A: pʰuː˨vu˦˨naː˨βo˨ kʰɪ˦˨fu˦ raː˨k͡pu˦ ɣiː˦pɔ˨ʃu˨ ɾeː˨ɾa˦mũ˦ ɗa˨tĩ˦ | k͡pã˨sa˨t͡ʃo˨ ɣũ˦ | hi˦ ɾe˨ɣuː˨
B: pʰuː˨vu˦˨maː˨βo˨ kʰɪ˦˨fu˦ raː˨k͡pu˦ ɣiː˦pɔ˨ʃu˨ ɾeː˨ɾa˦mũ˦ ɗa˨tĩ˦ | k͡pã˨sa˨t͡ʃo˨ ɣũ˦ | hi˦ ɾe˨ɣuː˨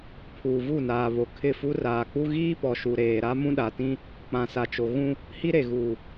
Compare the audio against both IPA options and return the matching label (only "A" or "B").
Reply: A